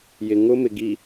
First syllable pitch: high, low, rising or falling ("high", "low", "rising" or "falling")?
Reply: low